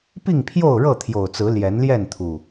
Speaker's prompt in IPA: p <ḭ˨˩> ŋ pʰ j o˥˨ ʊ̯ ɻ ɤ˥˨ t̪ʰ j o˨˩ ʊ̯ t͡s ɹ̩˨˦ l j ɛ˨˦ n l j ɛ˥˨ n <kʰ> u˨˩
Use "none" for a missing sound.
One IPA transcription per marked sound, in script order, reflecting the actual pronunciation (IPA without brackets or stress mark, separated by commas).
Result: i˥˨, t̪ʰ